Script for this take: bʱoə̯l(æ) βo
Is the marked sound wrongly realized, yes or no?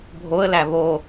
no